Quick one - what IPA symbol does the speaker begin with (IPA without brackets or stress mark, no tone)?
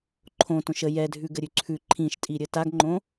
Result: ǃʰ